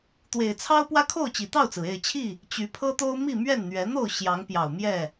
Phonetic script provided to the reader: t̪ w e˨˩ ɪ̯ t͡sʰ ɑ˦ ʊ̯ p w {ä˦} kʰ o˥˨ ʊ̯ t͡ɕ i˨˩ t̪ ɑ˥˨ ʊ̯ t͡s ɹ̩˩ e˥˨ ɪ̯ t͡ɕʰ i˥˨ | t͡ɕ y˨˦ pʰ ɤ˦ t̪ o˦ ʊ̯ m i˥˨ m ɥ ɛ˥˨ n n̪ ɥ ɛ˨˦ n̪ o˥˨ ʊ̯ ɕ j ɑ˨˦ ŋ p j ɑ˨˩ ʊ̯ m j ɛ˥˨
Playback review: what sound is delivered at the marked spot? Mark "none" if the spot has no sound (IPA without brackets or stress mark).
ä˦